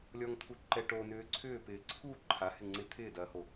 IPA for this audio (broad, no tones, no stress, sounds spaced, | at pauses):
lʲ ɔ ŋ t̪ʰ u ǃ ɛ ʈ o n ʏː ǀʰ ʏː p ɪː ǀʰ u ǃʰ a h ɪ ŋ͡ǀ ɪ t̪ʰ ɪː d ɐː h o